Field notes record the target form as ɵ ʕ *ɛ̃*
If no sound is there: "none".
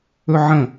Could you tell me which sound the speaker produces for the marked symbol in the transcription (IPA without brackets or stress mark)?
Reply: ə̃